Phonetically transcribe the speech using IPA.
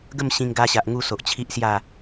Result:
ɡ ə˥˧ m ɕ ĩ˧ ŋ ɡ a˧ ɕ a˨ ʔ ŋ u˧ s o˨ ʔ t͡ɕʰ i˦ ʔ s j a˥˧

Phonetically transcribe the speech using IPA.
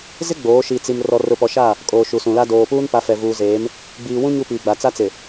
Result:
z ɪ˦ ɡ͡b oː˨˦ ʃ i˨ t͡s i˨ m r ɔ˨ r ʊ˨ p ɔ˨ ʃ a˦˨ | kʼ oː˨ ʃ u˨ s ũ˨ l a˦ d oː˨ p uː˦ n p a˨˦ f ɛ˨ v uː˨ z eː˨˦ m | ɡ͡b iː˨ w ũ˦ ɲ u˦ p iː˨ ɡ͡b a˨ t͡s a˦ t͡s ɪ˨

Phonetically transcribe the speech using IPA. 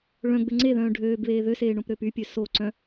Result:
ɭ œ̃ ɡ͡b ø ŋ͡ǀ e ð œ̃ː ɖʱ øː b β eː ð ø s eː ɳ õ p ɾ øː p y pʲ ø s o ǀ œ̃

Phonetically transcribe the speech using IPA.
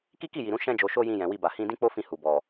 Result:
k i˦ k i˦˨ j i˨ ɾ ũ˨˦ ʃ ɛ̃˦ d͡ʒ o˧ ʃ o˦ j ĩ˧ j ɛ̃˨ w i˧ b a˨ h ĩ˧ d ĩ˦ k͡p o˦ f ĩ˧ h u˨ b ɔ˨

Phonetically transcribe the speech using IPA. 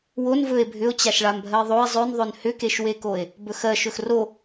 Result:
w o n v ɵ e̯ bʱ ʏ o̯ t͡ɕ a ʃ ɭ a m bʱ ɜ e̯ ðˤ o e̯ zˤ ɵ n ðˤ ɵ n h ʏ k e ʃ w e k o e̯ | b ɵ x ɜ ʃ ɵ x r o

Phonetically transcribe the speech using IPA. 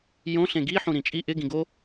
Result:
j õ ɬ ẽ ɡ i ħ ũ ɾ ĩ t͡ʃʼ i ʔ ɪ ɡ ĩ ɡ o

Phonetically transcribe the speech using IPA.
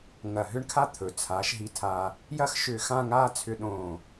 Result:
ŋ ɐ˧˩ ɦ ʏ˥ ɳ kʰ a˥ t̪ʰ ɵ˩˧ t͡sʰ aː˩˧ ʃ ɦ i˧ tʰ aː˧ | j ɐ˥ x ʃ ʏː˧ x ã˥˧ ŋ aː˥˧ t͡sʰ ʏ˧ ɗ õː˧˩

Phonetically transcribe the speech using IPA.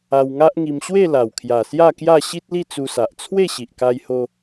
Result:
a˧ w ŋ a˦ ʔ ŋ i˧ m ɕ w e˥˧ l a˨˩ w kʰ j a˨˩ s j a˥˧ k j a˥˧ ɕ i˦ t̚ l i˥˧ t͡s u˧ s a˨ ʔ t͡sʰ w e˥˧ ɕ i˨ ʔ k a˧ j h o˧

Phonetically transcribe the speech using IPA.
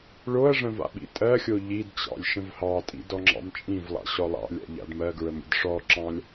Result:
ɭ o ɐ̯ ʐ ə̃ v a̰ ɓ ḭ tʼ ɜ xʲ o ʎ i d t͡ɕ ɑ̰ lʲ ʃ ə̃ v h ɑ tʼ ḭ d ɔ ŋ͡ǁ ɑ̰ m t͡ʃʼ ĩ v lˠ ɑ̰ ɕ ɔ lˠ ɑ̰ lʲ a̰ ʎ a̰ d m ɜ ɡ ɹ ə m ɾʲ ə̰ d ʂ ɔ ǁ ɑ̃ lʲ

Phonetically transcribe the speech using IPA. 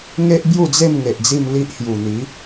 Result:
ŋ e˦ ʔ b j u˥˧ d͡z e˥˧ m ŋ e˨ ʔ d͡z i˥˧ m l i˦ ʔ h j u˨˩ n̪ i˨˦

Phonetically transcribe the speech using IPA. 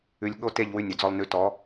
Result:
ʉ˧ lʲ ɠ o˦ t e˦˨ ʎ w ʉ˧ nʲ ɵ˨ d͡z ɔ˧ lˠ n ʉ˨˦ t ɔ˨˦

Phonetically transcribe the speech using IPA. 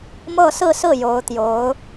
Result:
m ɤ˥˧ s ɹ̩˥˧ s ɹ̩˥˩ j o˧˥ ʊ̯ t̪ j o˧˥ ʊ̯

